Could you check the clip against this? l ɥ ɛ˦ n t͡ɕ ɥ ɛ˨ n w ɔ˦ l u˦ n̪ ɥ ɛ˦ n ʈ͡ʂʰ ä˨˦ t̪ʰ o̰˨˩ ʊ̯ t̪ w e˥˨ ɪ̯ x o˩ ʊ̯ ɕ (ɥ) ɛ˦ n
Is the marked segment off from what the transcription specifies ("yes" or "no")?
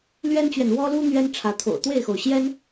yes